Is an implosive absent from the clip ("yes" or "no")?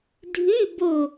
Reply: yes